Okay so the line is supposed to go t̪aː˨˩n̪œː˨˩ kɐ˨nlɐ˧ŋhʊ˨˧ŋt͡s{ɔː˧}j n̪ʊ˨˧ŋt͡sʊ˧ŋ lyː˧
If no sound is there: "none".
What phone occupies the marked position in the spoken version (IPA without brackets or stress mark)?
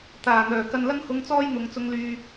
ɔː˧